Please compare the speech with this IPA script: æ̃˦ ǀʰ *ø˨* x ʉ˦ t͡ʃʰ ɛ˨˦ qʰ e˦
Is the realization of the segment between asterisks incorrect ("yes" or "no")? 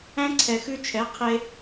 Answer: yes